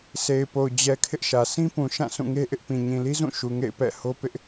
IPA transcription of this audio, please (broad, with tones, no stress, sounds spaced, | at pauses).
s e˨ ɪ̯ p o˨ ʊ̯ d͡ʑ ɛ˨ kʰ ɪ˦ ʔ ʃ ä˨ sʰ ĩ˦ p ũ˨ ʃ ã˦˨ s ũ˦˨ ŋ e˦ ʔ ɪ˦ ʔ p ĩ˨ ɲ ĩ˨ l i˦ z ũ˦˨ ʃ u˨ ŋ ḛ˦˨ ɪ̯ p ɛ̰˦˨ h o˦ p ɪ˦ ʔ